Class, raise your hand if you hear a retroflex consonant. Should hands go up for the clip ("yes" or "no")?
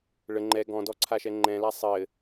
yes